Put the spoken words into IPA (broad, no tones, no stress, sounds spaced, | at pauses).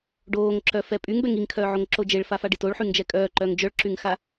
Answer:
ɖ oː ŋ ǁ œ f ɛ pʼ y ŋ b ɛ ŋ i ŋ kʰ œː ʕ o ŋ ǁ o d͡ʒ e ɭ f a f a ɖ i t o ɭ ħ y ŋ d͡ʒ ɛ kʼ œː ǃ œː ŋ d͡ʒ œ ɭ ǁ y ŋ x a